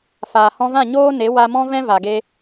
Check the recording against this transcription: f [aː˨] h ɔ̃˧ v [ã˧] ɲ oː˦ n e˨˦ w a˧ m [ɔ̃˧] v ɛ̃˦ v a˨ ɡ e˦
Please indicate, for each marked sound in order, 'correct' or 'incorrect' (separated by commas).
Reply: correct, incorrect, incorrect